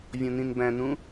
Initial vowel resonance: nasal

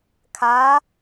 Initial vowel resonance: oral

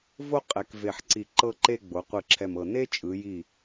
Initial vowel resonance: oral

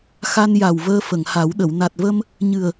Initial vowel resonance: oral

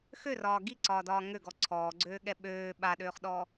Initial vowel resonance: oral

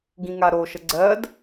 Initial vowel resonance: nasal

